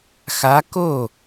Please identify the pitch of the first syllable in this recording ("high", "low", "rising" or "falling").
rising